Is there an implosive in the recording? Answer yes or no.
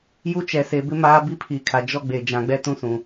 no